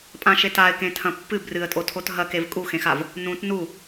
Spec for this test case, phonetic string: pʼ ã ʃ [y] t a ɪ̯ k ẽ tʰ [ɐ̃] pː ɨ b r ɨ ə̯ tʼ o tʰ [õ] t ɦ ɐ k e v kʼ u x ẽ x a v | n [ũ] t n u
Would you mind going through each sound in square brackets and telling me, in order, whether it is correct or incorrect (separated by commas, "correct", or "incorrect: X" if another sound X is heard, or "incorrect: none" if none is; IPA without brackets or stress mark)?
incorrect: e, correct, incorrect: o, correct